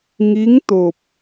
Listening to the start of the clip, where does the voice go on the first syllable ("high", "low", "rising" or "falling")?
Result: rising